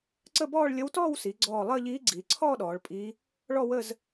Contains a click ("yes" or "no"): yes